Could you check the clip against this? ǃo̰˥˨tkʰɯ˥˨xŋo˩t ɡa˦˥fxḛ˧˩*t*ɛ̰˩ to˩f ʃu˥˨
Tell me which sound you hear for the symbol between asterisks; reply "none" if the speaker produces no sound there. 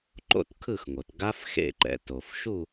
ǃ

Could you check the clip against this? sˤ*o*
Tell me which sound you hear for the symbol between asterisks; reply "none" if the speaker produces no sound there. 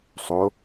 o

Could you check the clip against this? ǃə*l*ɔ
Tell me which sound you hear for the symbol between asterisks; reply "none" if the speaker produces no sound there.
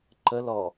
l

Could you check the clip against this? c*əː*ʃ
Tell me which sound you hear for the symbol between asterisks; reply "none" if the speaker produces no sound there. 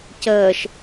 əː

